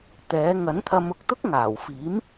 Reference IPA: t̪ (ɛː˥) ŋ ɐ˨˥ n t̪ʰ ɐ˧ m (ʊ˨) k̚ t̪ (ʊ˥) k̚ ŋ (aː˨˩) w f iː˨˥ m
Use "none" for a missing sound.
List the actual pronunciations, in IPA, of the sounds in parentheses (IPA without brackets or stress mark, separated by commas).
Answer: ɛː˨˥, ʊ˨, ʊ˥, aː˨˩